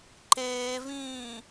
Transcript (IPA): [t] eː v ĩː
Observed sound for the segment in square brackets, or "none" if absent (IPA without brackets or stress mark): ǃ